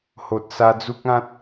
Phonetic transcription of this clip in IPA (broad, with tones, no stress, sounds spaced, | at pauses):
h o˨ t̚ s a˧ d͡z u˦ k̚ ã˦ t̚